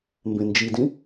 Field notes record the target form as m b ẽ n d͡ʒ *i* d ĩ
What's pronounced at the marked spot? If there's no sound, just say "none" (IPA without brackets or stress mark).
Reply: i